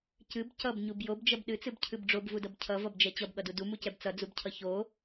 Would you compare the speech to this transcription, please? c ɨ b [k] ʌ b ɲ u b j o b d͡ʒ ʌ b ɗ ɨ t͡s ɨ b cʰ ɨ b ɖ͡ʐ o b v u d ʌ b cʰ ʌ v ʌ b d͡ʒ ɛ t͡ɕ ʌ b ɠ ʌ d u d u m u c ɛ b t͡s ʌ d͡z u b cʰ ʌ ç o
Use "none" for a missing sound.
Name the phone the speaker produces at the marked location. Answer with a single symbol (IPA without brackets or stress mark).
c